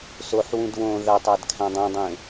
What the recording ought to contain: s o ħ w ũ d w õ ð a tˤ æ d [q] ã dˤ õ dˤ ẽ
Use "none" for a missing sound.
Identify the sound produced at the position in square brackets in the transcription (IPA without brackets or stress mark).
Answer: kʰ